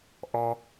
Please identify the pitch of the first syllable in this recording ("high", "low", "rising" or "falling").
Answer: low